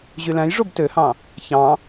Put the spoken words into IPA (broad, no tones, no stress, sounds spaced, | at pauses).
ʑ y l æ̃ j ʐ o b t ø h ɑ̃ | ç ɑ̃